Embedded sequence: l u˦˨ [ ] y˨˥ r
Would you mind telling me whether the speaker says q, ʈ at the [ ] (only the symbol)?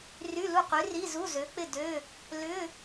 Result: q